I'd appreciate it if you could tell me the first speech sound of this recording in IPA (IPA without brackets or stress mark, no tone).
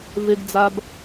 v